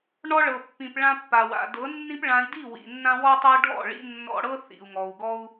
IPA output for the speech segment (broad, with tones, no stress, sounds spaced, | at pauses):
ɳ ɔ˧ ɭ ɤ˨ pː ĩ˨ p ɭ ã˧ pː a˨ w a̰˨ d ɤ˨˦ nː ĩ˦ p ɭ ã˧ i̯ d i˦˨ w ḭ˨ nː ã˧ w ɔ˦ tˤ ɤ˦ ɖʱ ɔ̰˦˨ ɭ ḭ˧ nː ɔ̰˧ ɽ ɤ˦ θ ḭ˨ u̯ ŋ ɔ˨ u̯ ɡ ɔ˦ u̯